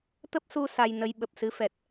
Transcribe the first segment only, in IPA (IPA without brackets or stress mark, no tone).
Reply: t̪